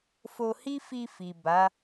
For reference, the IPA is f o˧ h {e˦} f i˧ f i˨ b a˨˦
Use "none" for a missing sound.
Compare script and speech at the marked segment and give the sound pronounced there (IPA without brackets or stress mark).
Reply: i˦